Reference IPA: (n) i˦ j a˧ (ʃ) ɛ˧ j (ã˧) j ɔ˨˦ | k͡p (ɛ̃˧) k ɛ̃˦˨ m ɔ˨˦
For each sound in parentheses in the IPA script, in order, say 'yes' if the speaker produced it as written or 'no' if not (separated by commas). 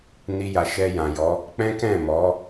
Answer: yes, yes, no, no